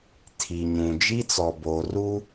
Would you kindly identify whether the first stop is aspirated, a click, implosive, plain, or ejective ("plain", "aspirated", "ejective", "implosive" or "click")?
aspirated